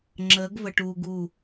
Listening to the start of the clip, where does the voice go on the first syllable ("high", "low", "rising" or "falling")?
rising